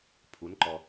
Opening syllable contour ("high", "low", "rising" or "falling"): rising